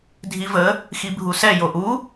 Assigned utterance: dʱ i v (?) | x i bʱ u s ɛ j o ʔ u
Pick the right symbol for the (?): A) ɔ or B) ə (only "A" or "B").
B